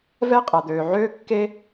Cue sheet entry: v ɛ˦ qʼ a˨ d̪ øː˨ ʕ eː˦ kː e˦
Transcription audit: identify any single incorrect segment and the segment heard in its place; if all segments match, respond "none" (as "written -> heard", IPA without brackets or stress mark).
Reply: eː˦ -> øː˦